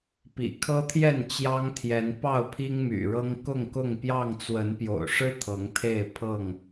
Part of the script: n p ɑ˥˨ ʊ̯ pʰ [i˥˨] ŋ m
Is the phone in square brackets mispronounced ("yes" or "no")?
yes